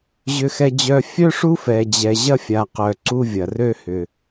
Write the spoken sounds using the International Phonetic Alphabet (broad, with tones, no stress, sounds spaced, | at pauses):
ʑ ʏ˧ x ɛ˧ d͡ʑ œ˧ fʲ œ˥ ʂ u˥ f ɛ˧ d͡ʑ ɛ˧ ʑ ɐ˥ fʲ a˧ q œ˧ ǀ u˥ vʲ ɐ˧ r ø˥ h ʏ˧